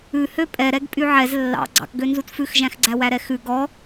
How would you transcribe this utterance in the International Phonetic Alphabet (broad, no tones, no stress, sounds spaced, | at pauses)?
ʉ h ø pʼ ɛ ɾ ɛ ɡ pʼ y ʕ ɛ z lː ɑ̰ ɡ͡ǀ ɑ̰ k ɡ ø n z u t f ʉ x ʒ æ̃ x ɡ͡ǀ æ w æ ɾ ɛ x ʉ ɡ ɔ